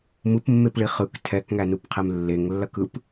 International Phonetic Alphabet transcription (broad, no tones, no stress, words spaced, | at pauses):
mɯpmːepɭi χɯk tʰɛkŋænupqʰem lːeŋlːɐkɯp